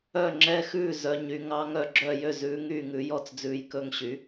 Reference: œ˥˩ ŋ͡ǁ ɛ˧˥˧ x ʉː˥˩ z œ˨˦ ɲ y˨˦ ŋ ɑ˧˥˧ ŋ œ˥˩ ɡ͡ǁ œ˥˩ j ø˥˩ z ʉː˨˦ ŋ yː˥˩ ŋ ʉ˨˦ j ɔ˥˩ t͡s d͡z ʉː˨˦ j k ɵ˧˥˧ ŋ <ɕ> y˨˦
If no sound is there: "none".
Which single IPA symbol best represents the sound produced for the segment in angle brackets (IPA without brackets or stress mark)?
ɕ